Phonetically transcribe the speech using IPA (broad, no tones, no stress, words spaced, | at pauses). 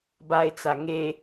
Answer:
baɪ̯t͡sa ŋe